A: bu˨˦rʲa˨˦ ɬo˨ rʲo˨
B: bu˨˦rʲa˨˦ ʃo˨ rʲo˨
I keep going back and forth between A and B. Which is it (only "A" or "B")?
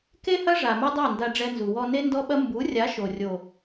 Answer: B